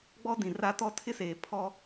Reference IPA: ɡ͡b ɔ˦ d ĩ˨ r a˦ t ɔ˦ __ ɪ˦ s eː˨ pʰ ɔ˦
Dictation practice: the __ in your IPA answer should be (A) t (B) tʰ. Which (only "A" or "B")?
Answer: B